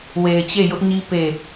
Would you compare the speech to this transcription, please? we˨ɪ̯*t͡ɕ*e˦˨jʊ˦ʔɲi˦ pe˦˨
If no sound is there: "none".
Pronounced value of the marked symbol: t͡ɕ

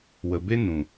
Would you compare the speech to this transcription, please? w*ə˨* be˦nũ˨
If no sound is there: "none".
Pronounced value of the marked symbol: ə˨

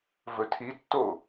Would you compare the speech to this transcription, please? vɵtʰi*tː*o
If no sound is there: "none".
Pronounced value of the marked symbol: tː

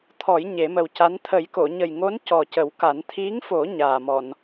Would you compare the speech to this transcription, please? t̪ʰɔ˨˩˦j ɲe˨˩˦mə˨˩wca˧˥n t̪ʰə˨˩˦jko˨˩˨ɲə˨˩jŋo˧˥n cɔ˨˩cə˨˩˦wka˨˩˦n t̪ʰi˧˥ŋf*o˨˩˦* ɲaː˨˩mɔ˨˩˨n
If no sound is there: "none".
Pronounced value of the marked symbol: o˨˩˦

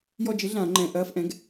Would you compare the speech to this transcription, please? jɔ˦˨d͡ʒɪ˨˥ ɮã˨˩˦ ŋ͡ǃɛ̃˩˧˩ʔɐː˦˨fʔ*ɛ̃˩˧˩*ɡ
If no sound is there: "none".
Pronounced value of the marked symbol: ɛ̃˨˥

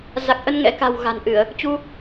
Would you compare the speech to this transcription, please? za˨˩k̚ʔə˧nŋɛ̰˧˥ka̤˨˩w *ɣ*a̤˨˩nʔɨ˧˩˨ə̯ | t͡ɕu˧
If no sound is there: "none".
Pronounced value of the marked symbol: ɣ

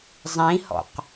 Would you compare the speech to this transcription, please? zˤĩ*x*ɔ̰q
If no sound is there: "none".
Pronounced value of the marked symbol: h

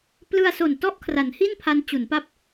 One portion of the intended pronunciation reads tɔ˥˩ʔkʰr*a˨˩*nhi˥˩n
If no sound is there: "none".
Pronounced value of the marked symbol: a˩˦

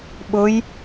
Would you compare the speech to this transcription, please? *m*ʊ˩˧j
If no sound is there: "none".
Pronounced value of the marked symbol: ɓ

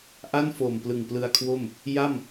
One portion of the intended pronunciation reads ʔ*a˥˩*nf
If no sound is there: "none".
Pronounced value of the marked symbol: a˥˩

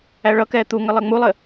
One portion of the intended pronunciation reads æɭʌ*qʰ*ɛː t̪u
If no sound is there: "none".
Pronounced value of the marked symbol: k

